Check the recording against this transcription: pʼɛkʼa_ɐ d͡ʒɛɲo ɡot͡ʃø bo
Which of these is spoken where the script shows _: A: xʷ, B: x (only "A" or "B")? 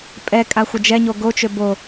A